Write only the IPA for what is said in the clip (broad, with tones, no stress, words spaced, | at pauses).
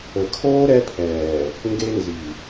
ə˨kʰoː˦ ɾɛ˦pʰɛː˨ | ŋɡe˦nzi˨